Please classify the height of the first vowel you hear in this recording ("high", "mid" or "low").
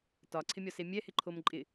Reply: low